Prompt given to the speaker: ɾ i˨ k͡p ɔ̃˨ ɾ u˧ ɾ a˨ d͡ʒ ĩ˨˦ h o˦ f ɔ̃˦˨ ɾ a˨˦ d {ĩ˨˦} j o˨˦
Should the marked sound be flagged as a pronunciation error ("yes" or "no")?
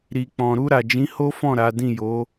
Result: yes